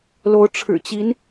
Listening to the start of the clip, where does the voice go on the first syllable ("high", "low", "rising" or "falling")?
rising